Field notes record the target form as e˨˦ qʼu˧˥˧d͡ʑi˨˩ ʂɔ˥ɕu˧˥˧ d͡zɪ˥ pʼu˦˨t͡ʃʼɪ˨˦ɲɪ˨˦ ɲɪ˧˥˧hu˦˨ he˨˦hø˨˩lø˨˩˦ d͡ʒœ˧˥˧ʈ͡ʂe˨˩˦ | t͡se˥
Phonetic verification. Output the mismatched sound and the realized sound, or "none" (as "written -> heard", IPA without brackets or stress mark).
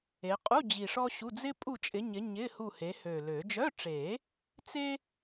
none